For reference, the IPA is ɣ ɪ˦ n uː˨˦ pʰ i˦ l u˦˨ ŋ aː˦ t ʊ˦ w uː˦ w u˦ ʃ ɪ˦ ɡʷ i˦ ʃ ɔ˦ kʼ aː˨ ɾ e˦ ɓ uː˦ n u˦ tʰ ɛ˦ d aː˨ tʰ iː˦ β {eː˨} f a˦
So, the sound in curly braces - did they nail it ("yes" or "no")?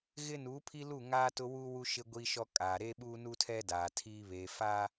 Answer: yes